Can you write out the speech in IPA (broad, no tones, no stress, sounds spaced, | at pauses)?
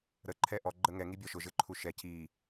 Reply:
ɾ ə ǃʰ ɛ ʔ ɔ ɡ͡ǃ ə ŋ ɛ ŋ i bʲ ɔ ʃ ʊ ʒ ɘ ǃʰ u ʃ ɛ c i